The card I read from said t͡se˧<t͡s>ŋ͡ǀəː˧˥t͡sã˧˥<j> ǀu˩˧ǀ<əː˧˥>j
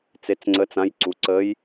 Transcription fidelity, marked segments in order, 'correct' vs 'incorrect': correct, correct, correct

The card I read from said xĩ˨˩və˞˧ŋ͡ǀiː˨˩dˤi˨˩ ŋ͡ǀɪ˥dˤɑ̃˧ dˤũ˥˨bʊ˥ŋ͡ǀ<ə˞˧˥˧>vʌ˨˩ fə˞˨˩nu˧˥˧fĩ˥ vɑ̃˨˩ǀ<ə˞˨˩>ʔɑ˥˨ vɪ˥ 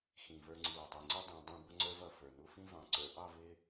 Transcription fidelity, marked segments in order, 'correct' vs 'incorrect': incorrect: ə˞˥, correct

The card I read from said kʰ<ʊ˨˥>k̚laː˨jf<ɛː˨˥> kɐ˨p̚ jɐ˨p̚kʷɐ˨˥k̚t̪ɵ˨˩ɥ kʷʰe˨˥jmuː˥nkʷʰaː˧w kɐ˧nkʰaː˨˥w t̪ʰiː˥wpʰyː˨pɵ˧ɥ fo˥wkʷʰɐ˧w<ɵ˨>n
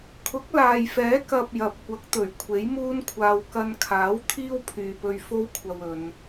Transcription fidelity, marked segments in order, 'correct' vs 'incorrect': correct, correct, incorrect: ɵ˨˧

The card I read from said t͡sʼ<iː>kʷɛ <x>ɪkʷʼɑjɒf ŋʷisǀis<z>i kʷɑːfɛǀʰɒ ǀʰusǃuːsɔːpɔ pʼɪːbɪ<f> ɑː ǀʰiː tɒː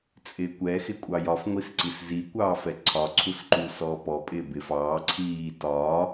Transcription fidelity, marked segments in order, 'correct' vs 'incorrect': incorrect: ɪː, correct, correct, correct

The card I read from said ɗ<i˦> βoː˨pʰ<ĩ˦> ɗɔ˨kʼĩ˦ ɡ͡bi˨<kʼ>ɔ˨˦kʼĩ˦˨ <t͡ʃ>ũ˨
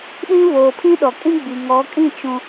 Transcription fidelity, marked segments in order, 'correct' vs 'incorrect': incorrect: ĩ˦, correct, incorrect: ŋ, correct

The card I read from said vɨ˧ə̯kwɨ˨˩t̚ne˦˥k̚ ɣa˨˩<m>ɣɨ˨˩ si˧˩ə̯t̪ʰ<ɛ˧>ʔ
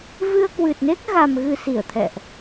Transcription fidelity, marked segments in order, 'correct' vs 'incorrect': correct, incorrect: ɛ̰˧˨

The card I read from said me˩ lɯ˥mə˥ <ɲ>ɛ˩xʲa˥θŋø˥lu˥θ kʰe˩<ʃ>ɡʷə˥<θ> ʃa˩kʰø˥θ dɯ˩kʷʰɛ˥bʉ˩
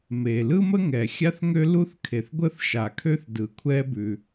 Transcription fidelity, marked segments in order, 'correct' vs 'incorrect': incorrect: ŋ, incorrect: θ, correct

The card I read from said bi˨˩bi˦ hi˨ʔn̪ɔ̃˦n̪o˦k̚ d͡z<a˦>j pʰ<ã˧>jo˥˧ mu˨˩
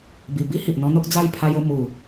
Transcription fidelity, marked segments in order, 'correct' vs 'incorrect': incorrect: a˥˧, incorrect: a˧

